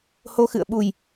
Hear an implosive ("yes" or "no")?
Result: yes